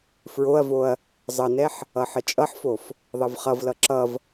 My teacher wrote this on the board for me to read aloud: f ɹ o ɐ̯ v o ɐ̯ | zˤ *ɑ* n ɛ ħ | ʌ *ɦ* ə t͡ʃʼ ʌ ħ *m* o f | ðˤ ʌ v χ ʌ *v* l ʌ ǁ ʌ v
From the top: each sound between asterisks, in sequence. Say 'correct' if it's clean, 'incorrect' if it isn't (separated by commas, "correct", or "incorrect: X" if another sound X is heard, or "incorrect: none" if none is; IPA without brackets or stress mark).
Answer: incorrect: ʌ, incorrect: ħ, incorrect: f, correct